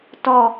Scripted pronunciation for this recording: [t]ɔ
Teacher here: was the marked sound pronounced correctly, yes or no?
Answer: yes